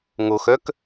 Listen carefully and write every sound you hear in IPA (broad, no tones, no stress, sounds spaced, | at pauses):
ŋ o x œ k